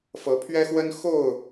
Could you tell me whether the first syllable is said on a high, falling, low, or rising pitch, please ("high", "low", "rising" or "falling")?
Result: rising